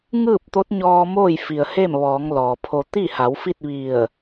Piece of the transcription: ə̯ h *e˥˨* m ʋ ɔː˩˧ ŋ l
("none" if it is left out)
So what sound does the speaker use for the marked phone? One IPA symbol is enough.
e˥˨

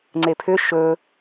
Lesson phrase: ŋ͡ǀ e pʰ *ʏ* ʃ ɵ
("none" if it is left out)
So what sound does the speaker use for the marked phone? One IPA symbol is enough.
ʏ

